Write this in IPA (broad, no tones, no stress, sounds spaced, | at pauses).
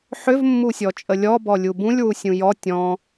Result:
ħ ʏ v mː u sʲ ɔ t͡ʃʼ ə lʲ ɔ b ɔ lʲ u b ũ lʲ w u sʲ ũ j ɔ tʲ ɔ̃